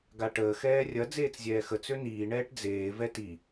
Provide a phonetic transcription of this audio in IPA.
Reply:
ɡ a ʈ əː x ɛː rʲ ɐ d͡z eː t͡s zʲ ɛː x ə t͡s ø n iː ɳ ɛː ʈ d͡z eː v ɛ t i

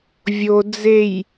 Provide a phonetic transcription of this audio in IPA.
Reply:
vʲ o d͡z e j

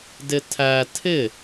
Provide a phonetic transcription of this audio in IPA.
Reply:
d ɪ tʰ æ tʰ ɪ

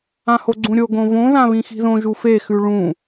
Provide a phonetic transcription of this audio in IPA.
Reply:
ã h o ɡ͡ǀ ũ ɾʲ o ɡ õ v õ ð ã β ĩ x i̤ ð õ ʒ u f e x ʉ ɭ ũ

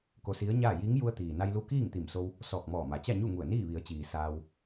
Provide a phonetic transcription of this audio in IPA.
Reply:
k o˧ s i˧˥ ə̯ ɲ aː˥˨ j i˧˥ ŋ j u˧ ə̯ t̪ iː˩ n a˧ j l u˧˥ k iː˥˨ ŋ t̪ i˧˩ m s o˧ w | s ɔː˧˩ k̚ m ɔː˧˩ m a˩ t͡ɕ a˥˨ ɲ u˥˨ ŋ u˧˩ ə̯ n iː˥˨ ʋ i˩˧ ə̯ t͡ɕ iː˩ s aː˧ w

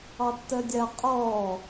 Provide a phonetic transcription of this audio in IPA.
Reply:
ɑ tː ɜ dʲ a qʼ ɔː

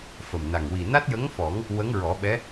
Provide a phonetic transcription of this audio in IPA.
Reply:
f ə˨˩ m n a˨˩ ŋ w i˨˩ n a˦˥ t̚ j ə˧˥ ŋ f ɔ˨˩˦ ŋ | w ə˧˥ ŋ ɹ ɔ˨˩˦ ɓ ɛ˧˥

